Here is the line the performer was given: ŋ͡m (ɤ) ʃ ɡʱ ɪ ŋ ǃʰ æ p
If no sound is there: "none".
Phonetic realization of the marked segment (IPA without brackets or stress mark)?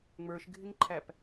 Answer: ə˞